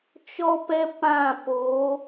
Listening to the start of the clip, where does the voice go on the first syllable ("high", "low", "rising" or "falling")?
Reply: high